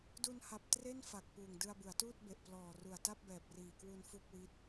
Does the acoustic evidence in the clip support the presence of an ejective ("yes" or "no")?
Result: no